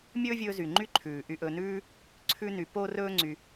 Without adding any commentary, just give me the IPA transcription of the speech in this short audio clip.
mʲ ɵː˦ vʲ ɵː˧ z y˨ ŋ͡ǃ y˦˨ ǃʰ ʉː˨ ʔ y˧ ʔ ɵ˧ n ʉː˦ | ǀʰ ʉ˦ n y˧ p o˦ r ɵː˦ ŋ͡ǀ y˧

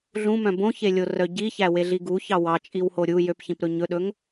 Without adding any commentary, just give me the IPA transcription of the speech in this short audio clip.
ɮ ũ m œ̃ b õ ç e lʲ o r œ ɟ i ç æ w e ɮ i ɡ u ç ɑ w ɑ t͡ʃʼ i w h o ɾʲ u j ø p ç ĩ p ɾ ɵ ɲ ɵ ɗ ɵ ŋ

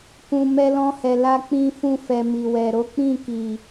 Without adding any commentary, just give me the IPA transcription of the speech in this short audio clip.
k ũ˨ m ɛ˧ l ɔ̃˧ h ɛ˨ l a˧ k͡p ĩ˧ f ũ˧ f ɛ˨ m i˨ w ɛ˨ ɾ o˨˦ k͡p ĩ˦˨ k i˨

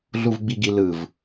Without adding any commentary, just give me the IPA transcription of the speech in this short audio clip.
ɮ u v ɡ͡b i ɡ i l ɯ v

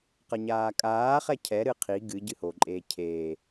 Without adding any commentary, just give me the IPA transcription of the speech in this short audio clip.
q ɐ ɲ aː kʼ aː χ ɛ cʰ ɛ ɾ ɨ qʰ i ɡ ɨ ɟ ɨ h o ǃʼ eː cʰ eː

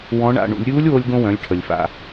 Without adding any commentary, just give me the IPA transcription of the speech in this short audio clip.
w ɔ̃˧˥ ɳ a̰˧ ɳ ṵ˩˧ lʲ ɾʲ uː˧˥ lʲ w o˧ lʲ ɡ õ˧ w œ̃˩˧ lʲ ʈʰ ə˩ lʲ f a̰˩

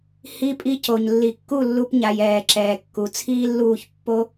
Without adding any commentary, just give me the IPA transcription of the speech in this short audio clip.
h i˧ pʼ i˧ c o˨ ɲ lː i˨ kː u˦˨ lː u˧ p ɲ a˨ j ɛː˨ ǁ ɛː˨ kː u˨ t͡sʰ iː˦ lː uː˦˨ ç pː o˧

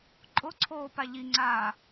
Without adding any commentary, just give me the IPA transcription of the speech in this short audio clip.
ǃʼ ʊ ǀʰ oː p a ʎ i ŋ͡ǀ aː

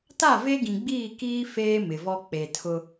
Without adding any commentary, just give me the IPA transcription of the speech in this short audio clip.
t a˦˨ v e˦ ɡ ĩ˨ ɡ͡b iː˦˨ k iː˦ f eː˦ m ɪ˨ v ɔ˦ k͡p e˨ tʰ ʊ˦

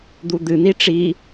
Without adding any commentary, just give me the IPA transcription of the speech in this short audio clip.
d̪ u d̪ ɨ n̪ i ʈ͡ʂ i

